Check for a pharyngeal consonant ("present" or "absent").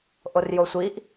absent